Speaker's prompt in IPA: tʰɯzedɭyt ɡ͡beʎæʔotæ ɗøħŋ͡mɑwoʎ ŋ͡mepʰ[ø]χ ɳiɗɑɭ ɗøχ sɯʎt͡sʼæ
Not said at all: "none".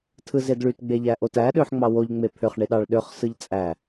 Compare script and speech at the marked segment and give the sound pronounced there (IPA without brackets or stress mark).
ø